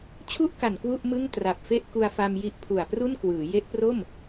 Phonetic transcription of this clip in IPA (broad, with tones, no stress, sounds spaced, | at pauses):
t͡ɕʰ u˥˩ ʔ k a˨˩ n k w u˥˩ ʔ m ɯ˥˩ ŋ t r a˨˩ p̚ f e˥˩ ʔ k u˧ a̯ f a˧ m j i˦˥ ʔ pʰ u˨˩ a̯ p r u˥˩ n k w ɯː˩˦ j e˦˥ ʔ p r o˥˩ m